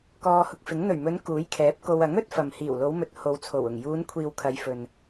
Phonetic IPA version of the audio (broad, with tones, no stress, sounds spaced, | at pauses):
k ɔː˧ h ʊ˧ k̚ f ɪ˨˥ ŋ n̪ ɵ˨˩ ɥ m ɵ˨˧ n k uː˨˥ j kʰ ɛː˨˥ p̚ k o˧ w ɐ˨˥ ŋ ɵ˨˥ t̚ f ɐ˨ m h iː˨˩ w l o˨˧ w m ɵ˨ t̚ h o˨˧ w t͡sʰ o˨˩ w ʊ˨˩ ŋ j uː˨˧ n kʷʰ iː˨ w kʰ ɐ˨˧ j f ɵ˨ n